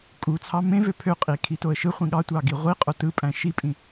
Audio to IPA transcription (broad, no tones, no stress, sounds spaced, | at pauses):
kʼ u t͡sʰ ɑ m ẽ v ø pʰ ø qʼ i kʰ i t o ə̯ ʃ ɯ χʷ ĩ ɠ ɑ tʷ ɑ ɡ i ʁʷ i qʼ o t ɯ pʼ æ̃ ʃ i pʼ ĩ